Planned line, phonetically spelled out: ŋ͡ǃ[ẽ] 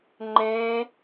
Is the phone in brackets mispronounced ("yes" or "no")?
no